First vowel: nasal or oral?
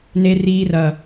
oral